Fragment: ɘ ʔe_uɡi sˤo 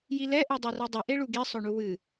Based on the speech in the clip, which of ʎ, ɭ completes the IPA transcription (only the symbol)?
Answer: ɭ